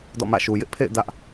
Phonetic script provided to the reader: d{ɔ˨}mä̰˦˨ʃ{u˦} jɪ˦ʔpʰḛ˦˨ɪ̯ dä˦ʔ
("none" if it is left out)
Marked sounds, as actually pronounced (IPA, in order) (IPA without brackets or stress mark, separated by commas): ɔ̰˦˨, u˨